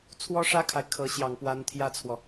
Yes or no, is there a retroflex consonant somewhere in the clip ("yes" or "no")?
yes